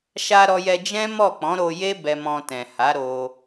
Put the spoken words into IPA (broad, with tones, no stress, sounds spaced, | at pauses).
ʃ a˧ ɾ ɔ˧ j ɛ˧ d͡ʒ ɛ̃˦ m ɔ˦˨ k͡p ɔ̃˨˦ ɾ o˧ j e˦ b ɛ˧ m ɔ̃˧ t ɛ̃˨ h a˨˦ ɾ o˧